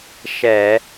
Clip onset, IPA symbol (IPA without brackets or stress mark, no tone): ʃ